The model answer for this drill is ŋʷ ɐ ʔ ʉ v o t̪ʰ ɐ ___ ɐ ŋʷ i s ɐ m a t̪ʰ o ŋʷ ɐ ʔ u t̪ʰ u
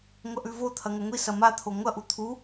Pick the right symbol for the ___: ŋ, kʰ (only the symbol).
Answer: ŋ